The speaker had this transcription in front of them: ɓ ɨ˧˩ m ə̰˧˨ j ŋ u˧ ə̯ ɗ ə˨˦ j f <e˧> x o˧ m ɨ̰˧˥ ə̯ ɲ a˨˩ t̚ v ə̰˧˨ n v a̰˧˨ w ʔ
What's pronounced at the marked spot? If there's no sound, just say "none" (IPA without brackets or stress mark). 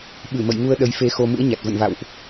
e˧